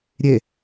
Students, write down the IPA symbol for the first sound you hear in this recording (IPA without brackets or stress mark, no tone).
ɾʲ